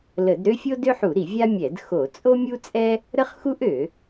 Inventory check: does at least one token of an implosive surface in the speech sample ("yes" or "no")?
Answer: no